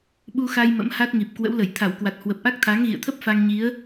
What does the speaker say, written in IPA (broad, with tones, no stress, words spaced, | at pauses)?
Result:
ɓu˧xa˧j mə̰˧˥mha˦˥t̚ŋi˨˩p̚kwə̰˧˥w lə˧˩jt̪ʰa˧˩wkwa˨˩t̚hwə˨˩p̚ ʔa˦˥k̚t̪ʰa˨˦ŋɣḭ˧˨ə̯t̪ʰə˦˥p̚ fa˧ŋɲi˨˦ə̯